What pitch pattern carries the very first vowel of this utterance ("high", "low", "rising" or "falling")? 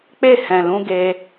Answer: falling